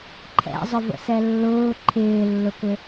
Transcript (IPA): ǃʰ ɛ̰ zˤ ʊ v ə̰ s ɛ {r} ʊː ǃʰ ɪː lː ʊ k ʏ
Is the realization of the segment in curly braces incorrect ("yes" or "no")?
yes